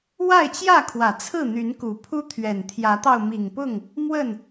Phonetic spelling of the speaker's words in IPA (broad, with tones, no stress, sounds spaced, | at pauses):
w a˥˨ ɪ̯ t͡ɕ j ä˥˨ kʰ w ä˨˩ t͡sʰ ɹ̩˥˨ n̪ y˨˦ n k u˨˩ pʰ u˦ t̪ʰ ɥ ɛ˨˩ n t̪ʰ j ä˨˦ t̪ ɑ˧ ʊ̯ m i˨˩ ŋ p ʊ˥˨ ŋ | m w ə˥˨ n